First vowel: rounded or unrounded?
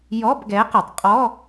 rounded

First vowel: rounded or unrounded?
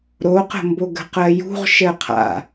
rounded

